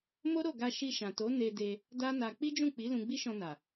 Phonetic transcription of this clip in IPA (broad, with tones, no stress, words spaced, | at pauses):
mo˦ɾo˦˨ɡa˧ ʃi˧ʃã˨to˨˦ ne˧ de˧ | da˦na˧ k͡pi˦d͡ʒũ˦˨k͡pi˨˦ lũ˧ɡ͡bi˦ʃɔ̃˧ na˨